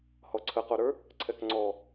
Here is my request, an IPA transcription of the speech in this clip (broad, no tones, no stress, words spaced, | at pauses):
hɔǀʰəqoɾə˞ | ǀʰɛkŋ͡ǀɔ